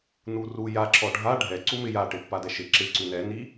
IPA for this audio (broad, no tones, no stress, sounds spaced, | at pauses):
n u r u j a ǁ ɔ ɖʱ a ɖʱ ɛ ǀ u m ɪ j a ʈ ɪ pː a d ɛ ʃ ɪ ǁ ɪ ǀ ʉ n ɛ n i